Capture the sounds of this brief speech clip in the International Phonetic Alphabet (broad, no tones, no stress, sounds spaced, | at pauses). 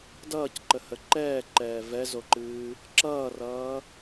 d ʌː c ǃ ə h ə ǃ ɛː ǃ ɛː v ɛ z o ǃ ɨː | ǁ ʌː r ʌː